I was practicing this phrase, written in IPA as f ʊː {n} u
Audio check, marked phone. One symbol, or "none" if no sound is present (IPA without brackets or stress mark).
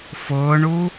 ɳ